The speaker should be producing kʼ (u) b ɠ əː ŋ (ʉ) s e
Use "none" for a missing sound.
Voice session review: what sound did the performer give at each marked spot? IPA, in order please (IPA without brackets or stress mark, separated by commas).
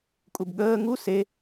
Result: u, u